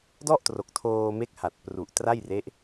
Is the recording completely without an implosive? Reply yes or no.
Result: yes